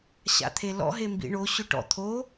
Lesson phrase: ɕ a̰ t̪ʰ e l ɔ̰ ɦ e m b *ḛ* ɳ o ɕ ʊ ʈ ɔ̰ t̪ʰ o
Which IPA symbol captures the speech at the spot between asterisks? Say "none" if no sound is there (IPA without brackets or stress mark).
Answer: ḭ